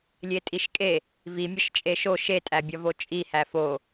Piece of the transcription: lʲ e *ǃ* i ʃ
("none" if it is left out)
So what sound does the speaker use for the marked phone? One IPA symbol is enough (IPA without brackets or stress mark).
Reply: tʼ